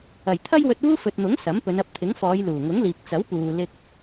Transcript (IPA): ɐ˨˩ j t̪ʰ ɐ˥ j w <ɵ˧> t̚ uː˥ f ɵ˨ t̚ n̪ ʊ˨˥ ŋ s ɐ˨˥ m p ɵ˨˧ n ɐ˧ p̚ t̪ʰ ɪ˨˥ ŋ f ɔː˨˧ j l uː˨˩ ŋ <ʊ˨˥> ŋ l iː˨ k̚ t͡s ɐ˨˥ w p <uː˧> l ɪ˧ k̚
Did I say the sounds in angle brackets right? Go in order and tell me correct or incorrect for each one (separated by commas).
correct, correct, incorrect